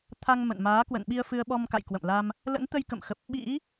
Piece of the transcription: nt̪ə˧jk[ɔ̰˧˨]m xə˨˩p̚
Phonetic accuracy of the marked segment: incorrect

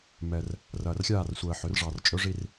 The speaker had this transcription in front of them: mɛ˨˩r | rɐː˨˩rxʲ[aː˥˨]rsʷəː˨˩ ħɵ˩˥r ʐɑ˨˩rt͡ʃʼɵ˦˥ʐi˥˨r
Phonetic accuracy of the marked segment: correct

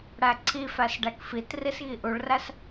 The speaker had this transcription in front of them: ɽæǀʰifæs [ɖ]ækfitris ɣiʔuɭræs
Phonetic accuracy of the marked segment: correct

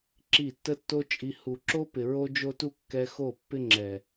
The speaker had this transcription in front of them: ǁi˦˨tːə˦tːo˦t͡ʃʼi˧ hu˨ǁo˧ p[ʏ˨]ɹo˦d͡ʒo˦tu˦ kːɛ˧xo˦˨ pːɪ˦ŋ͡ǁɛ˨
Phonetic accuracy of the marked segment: incorrect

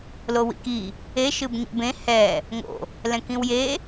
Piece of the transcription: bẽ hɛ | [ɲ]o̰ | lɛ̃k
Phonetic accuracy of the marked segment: incorrect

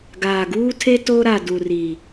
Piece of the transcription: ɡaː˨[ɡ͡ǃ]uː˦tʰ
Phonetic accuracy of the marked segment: incorrect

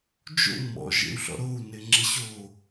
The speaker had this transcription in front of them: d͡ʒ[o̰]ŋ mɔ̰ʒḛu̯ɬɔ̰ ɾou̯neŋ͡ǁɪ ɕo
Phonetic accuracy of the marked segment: correct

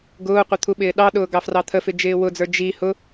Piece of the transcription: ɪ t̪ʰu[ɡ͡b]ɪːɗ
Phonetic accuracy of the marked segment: incorrect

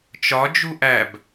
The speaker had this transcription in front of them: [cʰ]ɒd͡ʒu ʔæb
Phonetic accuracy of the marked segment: incorrect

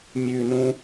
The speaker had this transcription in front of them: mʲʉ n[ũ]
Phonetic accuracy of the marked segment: correct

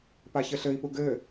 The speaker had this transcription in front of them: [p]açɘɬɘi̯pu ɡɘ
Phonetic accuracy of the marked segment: correct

